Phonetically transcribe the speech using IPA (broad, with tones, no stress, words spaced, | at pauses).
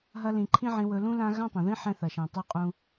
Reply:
ɦɐ˧lĩ˨ ǃʰĩ˦ʕĩ˧ wɵ˧lũ˦lã˦ ɣã˦tˤɐ̃˨ðĩ˦ ħɛ̃˧ θɐ˨ʃɛ̃˨tˤu˧qʼũ˧